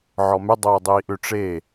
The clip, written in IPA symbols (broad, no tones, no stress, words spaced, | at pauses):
ʕɔmʏ dˤoːdˤiːʔʏ ʈ͡ʂe